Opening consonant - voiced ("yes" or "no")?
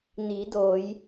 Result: yes